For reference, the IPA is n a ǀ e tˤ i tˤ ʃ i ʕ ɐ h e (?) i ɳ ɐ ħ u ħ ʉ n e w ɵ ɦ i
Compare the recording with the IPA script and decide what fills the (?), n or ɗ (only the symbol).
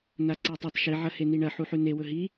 n